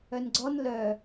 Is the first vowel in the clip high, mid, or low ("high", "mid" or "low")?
mid